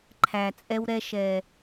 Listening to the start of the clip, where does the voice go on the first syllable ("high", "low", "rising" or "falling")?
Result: low